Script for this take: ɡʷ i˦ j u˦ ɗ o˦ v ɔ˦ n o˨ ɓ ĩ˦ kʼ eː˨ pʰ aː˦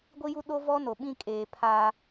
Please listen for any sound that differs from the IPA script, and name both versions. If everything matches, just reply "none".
none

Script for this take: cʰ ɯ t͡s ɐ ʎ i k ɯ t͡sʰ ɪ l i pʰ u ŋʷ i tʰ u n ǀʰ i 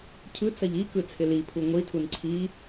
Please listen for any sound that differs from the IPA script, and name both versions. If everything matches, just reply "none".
none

